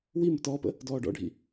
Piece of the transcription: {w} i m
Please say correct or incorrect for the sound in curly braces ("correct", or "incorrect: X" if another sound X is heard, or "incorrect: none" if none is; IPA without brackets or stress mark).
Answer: correct